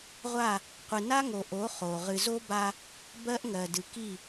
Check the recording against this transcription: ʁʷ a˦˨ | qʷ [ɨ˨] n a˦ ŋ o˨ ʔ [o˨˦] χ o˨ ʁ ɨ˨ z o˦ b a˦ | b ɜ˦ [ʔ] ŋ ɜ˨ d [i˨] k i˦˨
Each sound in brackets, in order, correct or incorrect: correct, correct, correct, incorrect: ɨ˨

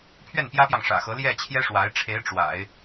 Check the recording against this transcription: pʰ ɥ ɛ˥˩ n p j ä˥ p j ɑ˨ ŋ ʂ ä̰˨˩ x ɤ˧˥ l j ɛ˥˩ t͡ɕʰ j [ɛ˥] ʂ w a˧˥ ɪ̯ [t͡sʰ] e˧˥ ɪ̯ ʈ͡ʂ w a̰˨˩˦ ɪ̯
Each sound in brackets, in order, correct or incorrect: correct, incorrect: ʈ͡ʂʰ

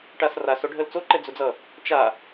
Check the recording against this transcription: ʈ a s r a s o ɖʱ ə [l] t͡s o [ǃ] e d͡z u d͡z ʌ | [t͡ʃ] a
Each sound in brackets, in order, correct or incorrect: correct, correct, correct

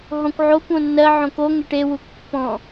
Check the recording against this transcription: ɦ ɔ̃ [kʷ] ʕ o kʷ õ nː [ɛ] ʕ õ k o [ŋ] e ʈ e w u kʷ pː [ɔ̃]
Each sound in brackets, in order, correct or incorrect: correct, incorrect: ɜ, correct, correct

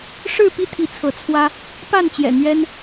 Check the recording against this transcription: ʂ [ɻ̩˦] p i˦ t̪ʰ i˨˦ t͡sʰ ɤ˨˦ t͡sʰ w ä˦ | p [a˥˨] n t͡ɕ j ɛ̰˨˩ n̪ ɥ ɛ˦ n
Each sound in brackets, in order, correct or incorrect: incorrect: ɻ̩˥˨, correct

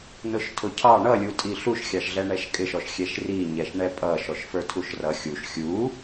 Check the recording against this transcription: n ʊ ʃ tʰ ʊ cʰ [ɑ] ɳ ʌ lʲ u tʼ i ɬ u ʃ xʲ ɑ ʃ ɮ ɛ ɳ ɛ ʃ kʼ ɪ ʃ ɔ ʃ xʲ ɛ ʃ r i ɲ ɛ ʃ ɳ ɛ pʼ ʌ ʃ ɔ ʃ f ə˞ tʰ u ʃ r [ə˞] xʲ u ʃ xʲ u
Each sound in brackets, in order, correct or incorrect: correct, incorrect: ʌ

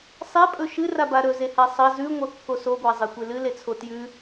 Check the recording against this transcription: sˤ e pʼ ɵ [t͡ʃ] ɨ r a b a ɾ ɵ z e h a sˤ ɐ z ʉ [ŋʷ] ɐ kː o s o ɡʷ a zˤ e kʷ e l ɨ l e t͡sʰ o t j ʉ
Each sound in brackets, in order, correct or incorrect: incorrect: ʃ, correct

